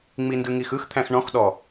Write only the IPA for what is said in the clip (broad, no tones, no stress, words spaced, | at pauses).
ŋ͡mindɯŋixɯx t̪ʰæ̃xɳɔ̃x ɗɔ